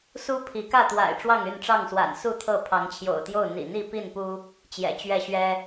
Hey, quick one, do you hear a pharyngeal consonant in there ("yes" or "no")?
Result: no